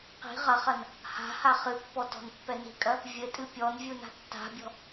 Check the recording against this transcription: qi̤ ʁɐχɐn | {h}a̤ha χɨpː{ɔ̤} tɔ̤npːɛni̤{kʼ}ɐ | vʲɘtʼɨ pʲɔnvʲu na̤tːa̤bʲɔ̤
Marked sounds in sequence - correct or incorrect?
correct, incorrect: ɔ, correct

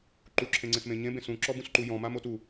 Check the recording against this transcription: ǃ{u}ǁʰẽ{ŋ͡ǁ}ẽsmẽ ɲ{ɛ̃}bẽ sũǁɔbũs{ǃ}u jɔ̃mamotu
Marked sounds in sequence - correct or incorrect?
correct, incorrect: ŋ͡ǀ, incorrect: ẽ, correct

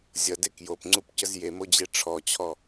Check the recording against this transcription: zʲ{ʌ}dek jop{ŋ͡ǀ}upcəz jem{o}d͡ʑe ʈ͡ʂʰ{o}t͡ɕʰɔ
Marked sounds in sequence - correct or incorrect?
correct, correct, correct, incorrect: ɔ

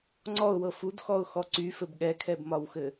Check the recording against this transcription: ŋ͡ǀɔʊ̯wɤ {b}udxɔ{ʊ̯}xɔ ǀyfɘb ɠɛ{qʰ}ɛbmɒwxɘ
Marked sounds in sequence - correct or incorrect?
incorrect: f, correct, incorrect: kʰ

